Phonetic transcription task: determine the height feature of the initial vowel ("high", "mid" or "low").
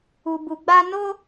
high